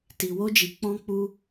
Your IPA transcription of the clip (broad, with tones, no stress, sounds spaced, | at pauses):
t i˧ w o˦ d͡ʒ i˧ k͡p ɔ̃˦ k͡p u˦